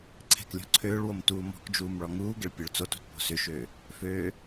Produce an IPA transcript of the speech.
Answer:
ǀʰ ɛ̤ k lʲ ɔ̤ ǀʰ øː ɭ w o m t uː m ɔ̤ k d͡ʒ uː m ɭ ɔ ŋ uː ɡ ɪ ɭ pʲ ø ɭ t͡s o t ṳ t p o̤ s ʏ ʃ øː | f øː

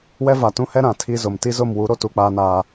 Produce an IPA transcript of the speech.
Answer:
w ɛ˦ v a˨ t ũ˦ h ɛ˦ ɾ ã˨ tʰ i˦ z ʊ˨ m t i˦ z ʊ˦˨ m w u˨˦ ɾ o˦ t u˦ k͡p aː˦ n aː˦

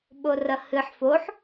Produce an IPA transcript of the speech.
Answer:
ɓ o r ɐ h ɨ ħ f o ħ

